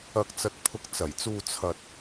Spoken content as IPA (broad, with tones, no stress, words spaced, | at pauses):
ɐ˧k̚t͡sɐ˧t̚ pʰʊ˧k̚ t͡sɐ˨˩jt͡suː˧ t͡sʰɐ˧t̚